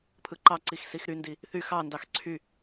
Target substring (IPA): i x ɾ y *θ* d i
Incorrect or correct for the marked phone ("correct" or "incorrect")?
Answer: incorrect